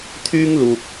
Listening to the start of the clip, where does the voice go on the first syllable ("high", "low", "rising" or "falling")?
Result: high